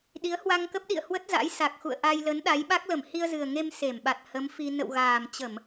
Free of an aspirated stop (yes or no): yes